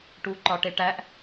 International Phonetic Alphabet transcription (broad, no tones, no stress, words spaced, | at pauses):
ʈuǃɒʈeʈæʔ